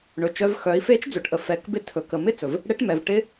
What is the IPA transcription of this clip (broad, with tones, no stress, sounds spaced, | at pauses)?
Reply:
ɳ ɵ˩ t͡ʃ œ˧ v x œ˩˧ i̯ f e˧˥ t͡ʃ d͡z ɵ˩˧ ʈ ʔ ə˩ f ɛ˩˧ k b ɪ˧˥ tʰ ɵ˩ k ə˩ m ɪ˥ t͡s ɵ˩ v | ɽ e˧˥ ʈ m ɛ˩ v ʈ ɪ˧